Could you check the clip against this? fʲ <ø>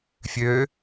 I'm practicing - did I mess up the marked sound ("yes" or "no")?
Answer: no